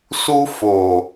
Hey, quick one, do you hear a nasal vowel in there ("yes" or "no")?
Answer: no